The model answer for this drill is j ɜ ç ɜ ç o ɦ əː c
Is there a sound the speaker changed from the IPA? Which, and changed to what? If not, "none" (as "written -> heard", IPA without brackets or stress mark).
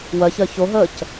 j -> w